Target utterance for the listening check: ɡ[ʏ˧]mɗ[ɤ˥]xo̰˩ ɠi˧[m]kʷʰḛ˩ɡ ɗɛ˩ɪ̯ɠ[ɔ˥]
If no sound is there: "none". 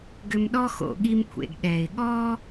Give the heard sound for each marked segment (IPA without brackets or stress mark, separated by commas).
ʏ˧, ɔ˥, m, ɔ˥